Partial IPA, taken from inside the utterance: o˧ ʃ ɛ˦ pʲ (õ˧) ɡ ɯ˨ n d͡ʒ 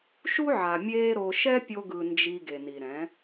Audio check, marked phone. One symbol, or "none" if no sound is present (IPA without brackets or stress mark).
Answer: o˧